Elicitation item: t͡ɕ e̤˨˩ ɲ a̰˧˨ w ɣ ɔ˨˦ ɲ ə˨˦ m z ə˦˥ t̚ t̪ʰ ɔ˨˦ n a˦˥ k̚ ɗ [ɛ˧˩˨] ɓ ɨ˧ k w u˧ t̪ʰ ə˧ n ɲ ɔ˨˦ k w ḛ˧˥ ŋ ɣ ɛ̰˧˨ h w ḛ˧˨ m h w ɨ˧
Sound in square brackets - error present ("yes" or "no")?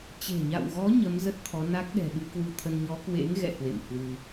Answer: yes